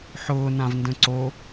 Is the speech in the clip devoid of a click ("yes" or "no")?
no